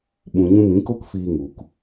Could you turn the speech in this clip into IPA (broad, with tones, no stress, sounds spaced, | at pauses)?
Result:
ɓ ũ˨ ɲ ũ˧ m ĩ˨˦ k o˦ k f iː˧ ŋ u˨ k